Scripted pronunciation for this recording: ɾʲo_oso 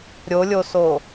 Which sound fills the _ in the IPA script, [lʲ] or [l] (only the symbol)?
lʲ